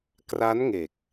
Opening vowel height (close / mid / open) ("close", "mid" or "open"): open